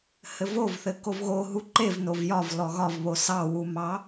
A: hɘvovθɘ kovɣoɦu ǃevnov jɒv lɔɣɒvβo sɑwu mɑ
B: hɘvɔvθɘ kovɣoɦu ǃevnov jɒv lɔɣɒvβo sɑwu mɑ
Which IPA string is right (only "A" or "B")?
A